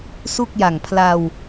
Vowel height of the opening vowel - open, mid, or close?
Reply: close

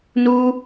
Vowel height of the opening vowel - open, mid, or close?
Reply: close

